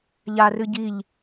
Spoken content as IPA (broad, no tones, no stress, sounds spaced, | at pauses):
ʎ a r ɨ ɟ i ʎ